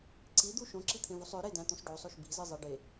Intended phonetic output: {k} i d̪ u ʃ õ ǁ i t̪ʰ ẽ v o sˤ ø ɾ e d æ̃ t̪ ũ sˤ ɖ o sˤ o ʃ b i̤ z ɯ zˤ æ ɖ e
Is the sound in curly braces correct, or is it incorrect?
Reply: incorrect